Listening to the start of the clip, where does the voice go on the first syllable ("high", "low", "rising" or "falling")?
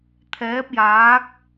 rising